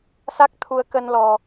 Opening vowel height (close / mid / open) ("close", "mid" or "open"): open